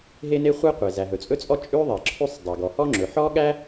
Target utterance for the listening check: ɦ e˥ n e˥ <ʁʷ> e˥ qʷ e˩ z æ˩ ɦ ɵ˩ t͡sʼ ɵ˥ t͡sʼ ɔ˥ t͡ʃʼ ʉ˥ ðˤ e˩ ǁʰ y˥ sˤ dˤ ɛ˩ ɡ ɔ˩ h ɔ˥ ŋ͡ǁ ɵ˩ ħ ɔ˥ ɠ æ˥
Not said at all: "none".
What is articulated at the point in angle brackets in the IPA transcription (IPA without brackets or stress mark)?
χʷ